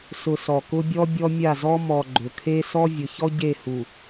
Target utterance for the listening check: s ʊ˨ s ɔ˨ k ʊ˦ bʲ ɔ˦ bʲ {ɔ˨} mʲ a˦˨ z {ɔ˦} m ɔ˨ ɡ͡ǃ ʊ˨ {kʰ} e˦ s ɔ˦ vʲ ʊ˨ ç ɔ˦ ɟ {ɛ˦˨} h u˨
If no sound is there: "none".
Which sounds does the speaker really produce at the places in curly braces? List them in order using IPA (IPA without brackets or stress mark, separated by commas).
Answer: ɔ˦, ɔ˦, kʰ, e˦˨